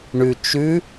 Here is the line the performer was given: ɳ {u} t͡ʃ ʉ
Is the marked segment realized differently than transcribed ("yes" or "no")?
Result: yes